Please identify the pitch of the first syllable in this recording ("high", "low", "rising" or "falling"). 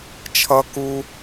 high